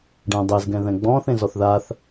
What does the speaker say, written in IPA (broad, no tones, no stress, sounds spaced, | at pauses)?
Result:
ɖ ɛ̃ dˤ e z ɡ ɛ̃ ð ɛ̃ ɡ͡b ɔ̃ː θ ẽ z ɔ θ ð a θ